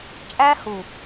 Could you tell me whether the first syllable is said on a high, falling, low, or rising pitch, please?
high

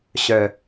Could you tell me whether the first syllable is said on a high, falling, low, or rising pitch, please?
low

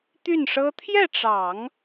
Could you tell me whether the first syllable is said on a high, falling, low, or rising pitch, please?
falling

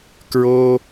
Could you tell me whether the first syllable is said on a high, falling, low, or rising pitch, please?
high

